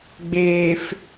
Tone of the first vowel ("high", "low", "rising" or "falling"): low